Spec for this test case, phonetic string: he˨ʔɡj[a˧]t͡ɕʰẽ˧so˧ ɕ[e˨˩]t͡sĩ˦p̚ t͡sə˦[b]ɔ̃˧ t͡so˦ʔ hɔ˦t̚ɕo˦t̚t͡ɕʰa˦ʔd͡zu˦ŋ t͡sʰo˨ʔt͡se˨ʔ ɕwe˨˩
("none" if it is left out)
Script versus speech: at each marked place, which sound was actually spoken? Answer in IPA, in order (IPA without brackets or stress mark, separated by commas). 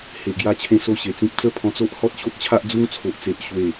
a˧, e˨˩, pʰ